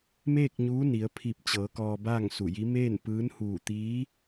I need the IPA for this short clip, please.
m eː˥˨ k̚ ɲ uː˧˥ n i˩˧ ə̯ pʰ i˧˩ p̚ t͡ɕ ɤː˩˧ k ɔː˧ b aː˥˨ ŋ s u˧˩ j i˧˥ m eː˥˨ n p ɯː˧˥ n h uː˧˩ t̪ iː˧˥

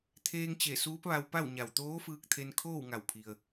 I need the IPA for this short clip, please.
t̪ʰ eː˧ ŋ t͡ɕ e˧˩ s uː˧˥ p̚ ʋ a˧ w p a˥˨ w ɲ a˧˩ w t̪ oː˧˥ f ɯː˧ k̚ t̪ʰ e˧ n kʰ oː˥˨ w ŋ a˧˩ w pʰ i˩ ə̯

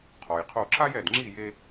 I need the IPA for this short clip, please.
qʰ ɔ˩ j qʰ o˧˩ ǁ a˥ j ɛ˧˩ d ŋ͡ǁ i˥˩ j e˧

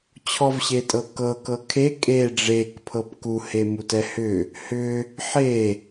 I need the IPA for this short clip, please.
t͡ɕʰ ɔ v ɕ e tʼ ɤ k ɤ k ɤ kʰ e kʼ e ɖ͡ʐ e k pʰ ɤ p k u h e m u t ɛ h ʏ | h ʏ | ħ e

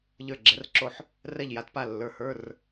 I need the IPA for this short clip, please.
ʎ ə˞˧˩ ɡ͡ǁ ɛ˩˧ r ǁ o˧˩ ħ | r ɛ˧˩ ʎ j a˩˧ t p a˧˩ lː ə˞˩˧˩ h ə˞˩˧˩ r

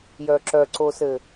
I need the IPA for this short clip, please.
j œ ǁ œ ǀ o s ɘ

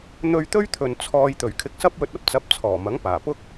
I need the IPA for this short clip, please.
n̪ ɵ˧ ɥ t̪ ɵ˥ ɥ t̪ʰ ɵ˨ n t͡sʰ ɔː˧ j t̪ ɵ˨˩ ɥ kʰ ɪ˧ k̚ s ɐ˥ p̚ w ɵ˧ t̚ ɐ˥ p̚ t͡s ɐ˨˥ p̚ t͡sʰ ɔː˨˩ m ɐ˨˥ ŋ p aː˨˩ p ʊ˥ k̚

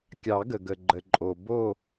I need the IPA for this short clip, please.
kʲ ɑ˨˩˦ ɡ ə˩ ɡ ə˩ ɡ͡ǃ ə˩ ǃʼ o˩ b o˦˨

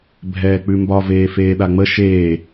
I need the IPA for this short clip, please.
bʱ ɛː k͡p ʉ m b ɒ v eː f eː ɗ a ŋ͡m ə ʃ eː

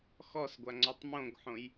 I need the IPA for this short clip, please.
x ɔ s ɡʷ a ŋ͡ǀ ɔ tˤ m õ ɡ ħ õ j

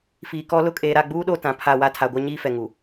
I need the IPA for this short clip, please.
f iː˨ k ɔ˦ l ʊ˦ kʼ eː˨ ɾ a˦˨ ɡ͡b uː˦ ɗ o˦ t ã˨ pʰ a˦˨ w a˦ tʰ a˨ ɡʷ a˦ ɲ iː˦ f ɛ˨ ŋ u˨

